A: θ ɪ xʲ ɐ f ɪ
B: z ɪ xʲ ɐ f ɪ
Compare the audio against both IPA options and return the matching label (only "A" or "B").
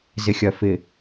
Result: B